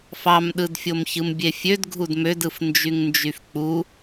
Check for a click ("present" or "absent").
absent